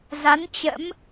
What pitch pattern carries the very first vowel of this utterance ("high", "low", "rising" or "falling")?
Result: rising